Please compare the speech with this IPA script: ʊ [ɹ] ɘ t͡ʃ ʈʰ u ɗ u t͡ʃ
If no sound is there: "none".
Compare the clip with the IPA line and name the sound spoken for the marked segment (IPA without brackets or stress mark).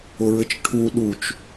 ɹ